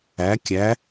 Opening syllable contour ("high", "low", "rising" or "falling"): rising